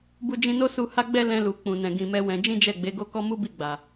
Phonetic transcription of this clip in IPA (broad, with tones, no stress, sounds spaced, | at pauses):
b u˧ d͡ʒ ĩ˧ n o˦ s u˧ h a˦ ɡ͡b ɛ˦ l ɛ̃˧ l u˨ k͡p ũ˨ n ɛ̃˨ ɡ ĩ˨ m ɛ˨˦ w ɛ̃˧ d͡ʒ ĩ˦ d͡ʒ ɛ˦˨ ɡ͡b e˨˦ ɡ o˦ k ɔ˦ m u˦ b i˦˨ ɡ͡b a˨